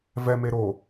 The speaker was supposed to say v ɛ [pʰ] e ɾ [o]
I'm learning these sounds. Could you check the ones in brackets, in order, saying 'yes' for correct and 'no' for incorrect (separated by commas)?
no, yes